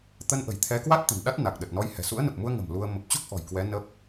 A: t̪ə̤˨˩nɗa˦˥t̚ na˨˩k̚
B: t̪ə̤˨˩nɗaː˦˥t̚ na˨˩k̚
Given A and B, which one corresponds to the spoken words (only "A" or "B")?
A